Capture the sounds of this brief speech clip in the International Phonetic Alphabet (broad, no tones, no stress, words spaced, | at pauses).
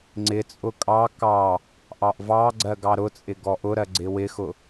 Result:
ŋ͡ǀɪ t͡sʼʊkʼɑ kɑ | ʔɑʔvɑ ɡ͡ǀɜɡɑɾʊt͡sʼɪ ɡɔʔʊɾɜ ɡ͡ǀɪwɪxʊ